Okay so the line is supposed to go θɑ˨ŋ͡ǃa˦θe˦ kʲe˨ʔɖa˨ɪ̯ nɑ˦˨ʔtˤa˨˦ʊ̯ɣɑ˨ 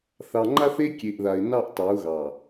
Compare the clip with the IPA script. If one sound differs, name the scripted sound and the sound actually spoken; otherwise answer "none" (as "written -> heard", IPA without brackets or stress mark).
ɖ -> ð